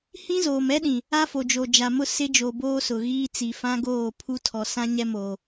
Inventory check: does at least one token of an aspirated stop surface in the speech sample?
yes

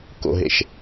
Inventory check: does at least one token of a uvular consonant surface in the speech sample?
no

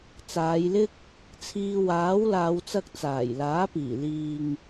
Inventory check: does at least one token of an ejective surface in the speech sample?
no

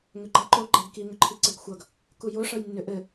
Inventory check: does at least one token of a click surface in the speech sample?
yes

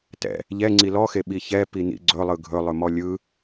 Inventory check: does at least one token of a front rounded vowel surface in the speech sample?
no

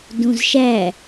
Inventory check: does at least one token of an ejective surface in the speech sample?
no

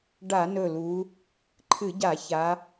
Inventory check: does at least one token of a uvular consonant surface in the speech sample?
no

